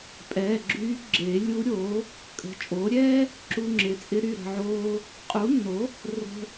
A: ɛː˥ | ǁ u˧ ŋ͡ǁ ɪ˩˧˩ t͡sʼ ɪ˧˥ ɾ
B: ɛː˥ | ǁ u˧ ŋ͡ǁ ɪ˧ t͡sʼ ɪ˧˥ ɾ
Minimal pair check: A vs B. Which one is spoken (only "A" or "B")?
A